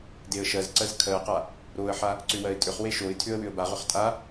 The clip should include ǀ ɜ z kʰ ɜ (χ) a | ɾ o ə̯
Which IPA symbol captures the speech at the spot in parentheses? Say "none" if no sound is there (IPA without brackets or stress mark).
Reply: q